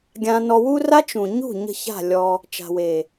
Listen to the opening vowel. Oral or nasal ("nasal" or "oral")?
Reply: nasal